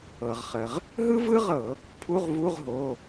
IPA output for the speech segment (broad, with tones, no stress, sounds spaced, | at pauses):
ɤ˩ ʁ χ ə˩ ʁ | ɦ ɯ˥ v ɯ˥ ʁ ɤ˧˩˧ | pʰ u˧˥˧ ʁ v u˧˥˧ ʁ ɦ o˩˧˩